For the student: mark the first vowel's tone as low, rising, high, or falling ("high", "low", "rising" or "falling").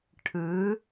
rising